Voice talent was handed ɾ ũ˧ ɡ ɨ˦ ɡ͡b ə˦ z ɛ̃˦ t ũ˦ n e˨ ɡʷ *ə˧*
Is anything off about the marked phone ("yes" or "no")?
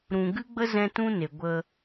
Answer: no